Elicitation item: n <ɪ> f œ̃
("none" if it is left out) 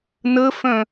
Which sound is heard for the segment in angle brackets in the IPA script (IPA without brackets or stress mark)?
ə